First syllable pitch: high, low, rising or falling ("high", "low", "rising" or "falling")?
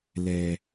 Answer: low